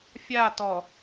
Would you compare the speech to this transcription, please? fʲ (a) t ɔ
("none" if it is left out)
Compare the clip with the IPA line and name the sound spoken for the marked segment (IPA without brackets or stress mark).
a